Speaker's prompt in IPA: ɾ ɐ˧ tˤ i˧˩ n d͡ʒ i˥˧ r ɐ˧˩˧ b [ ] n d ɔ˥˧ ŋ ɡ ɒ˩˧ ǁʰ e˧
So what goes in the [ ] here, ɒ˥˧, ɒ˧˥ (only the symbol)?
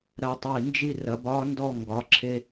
ɒ˧˥